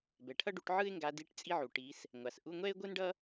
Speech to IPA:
b ɛ˩ ʈʰ ʌ˥ ɖ u˨˦ ʈ ʕ ɯ˥ ɪ̯ ŋ ɡ a˨˦ d i˧˥˧ ʈ t͡sʼ i˥ ʕ u˩ ʈ i˨˦ s | ŋʷ a˩ s ʔ u˧˥˧ ŋʷ ɛ˥ ɪ̯ ɡʷ ɯ˥ n ɖ ʌ˥

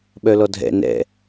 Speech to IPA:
ɓ œ l ɔ dʱ ɛ̰ n ɛ̰

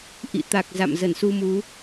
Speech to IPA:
ʔ ḭ˧˨ t̪ a˨˩ k̚ z a̰˧˨ m z ə˧˩ n s u˧ m u˨˦

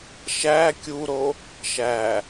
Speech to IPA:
ʃ æ kʲ u ɾ o | ʃ æ

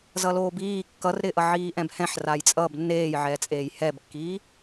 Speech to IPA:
z ʌ l oː b iː kː ʌ r ɾ ɪ ʔ ʌ ʕ iː ʔ ɛ̃ b h ɛ̃ ħ r a j t͡sʼ ʌ b nː eː j ʕ ɛː t͡sʼ eː j h ɛ b kː iː

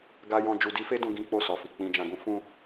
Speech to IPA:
ɡ a˧ j ɔ̃˧ d͡ʒ u˧ d i˦ f e˦ d ũ˧ ɡ ĩ˦ k͡p o˦˨ s ɔ˨ f i˨ k͡p ĩ˨ d͡ʒ ã˨ ɡ ũ˧ f ũ˧

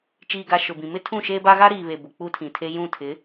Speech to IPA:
t͡ʃ iː˨ ɡ a˨ ʃ ʊ˨ b ĩ˨ m ɪ˦ tʰ ũ˦˨ ʃ eː˦ b a˦ ɣ a˦ ɾ iː˨ β e˨ b ʊ˨ k͡p u˦ tʰ ĩ˨ tʰ e˦ j ũ˦˨ tʰ ɪ˨˦

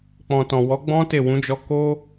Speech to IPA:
k͡p ɔ̃˨ t ɔ̃˨ w ɔ˨˦ ɡ͡b ɔ̃˦ t e˦˨ w ũ˨˦ d͡ʒ ɔ˧ k o˦

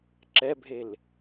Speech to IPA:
ǁ ɛ bʱ e l

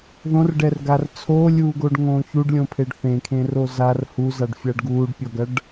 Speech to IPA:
ð õ r ɖ ɛ r ɡ a r t͡sʰ o lʲ uː ɡ o ɖ ŋ õː ç u ɖ lʲ õ pʰ e ɖ θ ẽ kʰ ẽ r o z a r h u z a ɖ fʲ a ɖ ɡ uː ɖ pʲ ɔ ɡ ɐ ɖ

